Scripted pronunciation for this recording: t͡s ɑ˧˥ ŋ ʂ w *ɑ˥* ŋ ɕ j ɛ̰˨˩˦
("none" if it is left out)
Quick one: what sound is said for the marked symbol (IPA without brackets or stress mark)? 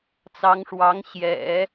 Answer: ɑ˧˥